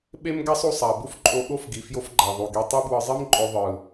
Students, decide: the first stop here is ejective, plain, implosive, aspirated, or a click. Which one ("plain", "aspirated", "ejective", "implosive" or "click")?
implosive